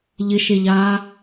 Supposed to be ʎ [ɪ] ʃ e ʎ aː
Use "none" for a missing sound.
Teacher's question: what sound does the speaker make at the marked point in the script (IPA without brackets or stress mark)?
ɪ